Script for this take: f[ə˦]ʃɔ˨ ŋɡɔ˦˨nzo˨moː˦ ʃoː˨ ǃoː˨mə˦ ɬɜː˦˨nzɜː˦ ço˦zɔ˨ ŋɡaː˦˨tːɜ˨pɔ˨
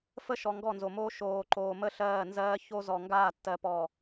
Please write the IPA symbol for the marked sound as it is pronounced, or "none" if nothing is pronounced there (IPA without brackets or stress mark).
ə˦